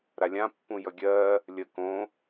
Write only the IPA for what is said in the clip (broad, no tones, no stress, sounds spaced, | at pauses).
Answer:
ɾ a lʲ ã pː ũ j ʌ ɡʲ ɜ | lʲ ə k õ